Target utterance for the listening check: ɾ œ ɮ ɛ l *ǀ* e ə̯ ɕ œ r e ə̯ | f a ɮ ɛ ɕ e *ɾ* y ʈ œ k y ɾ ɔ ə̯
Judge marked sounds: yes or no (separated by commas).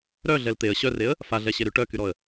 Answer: no, yes